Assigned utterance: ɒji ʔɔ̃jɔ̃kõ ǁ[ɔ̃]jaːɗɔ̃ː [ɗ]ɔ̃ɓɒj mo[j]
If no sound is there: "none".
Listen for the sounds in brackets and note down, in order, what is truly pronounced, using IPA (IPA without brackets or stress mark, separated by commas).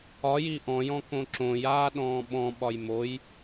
õ, ɓ, j